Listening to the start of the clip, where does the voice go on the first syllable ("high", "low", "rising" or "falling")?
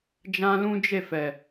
high